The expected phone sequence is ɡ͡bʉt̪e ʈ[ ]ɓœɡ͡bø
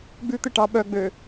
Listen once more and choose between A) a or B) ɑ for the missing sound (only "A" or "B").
B